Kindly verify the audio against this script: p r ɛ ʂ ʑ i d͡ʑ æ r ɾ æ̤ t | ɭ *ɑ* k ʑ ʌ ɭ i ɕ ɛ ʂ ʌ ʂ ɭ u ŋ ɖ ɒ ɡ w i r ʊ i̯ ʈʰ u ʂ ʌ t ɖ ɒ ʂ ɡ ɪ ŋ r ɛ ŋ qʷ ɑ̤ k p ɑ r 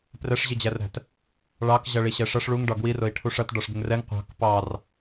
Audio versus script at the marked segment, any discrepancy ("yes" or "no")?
no